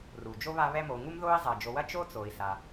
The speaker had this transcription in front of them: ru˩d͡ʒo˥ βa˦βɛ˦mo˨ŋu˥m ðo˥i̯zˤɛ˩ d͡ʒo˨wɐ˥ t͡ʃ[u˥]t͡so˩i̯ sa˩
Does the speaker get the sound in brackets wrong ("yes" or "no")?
yes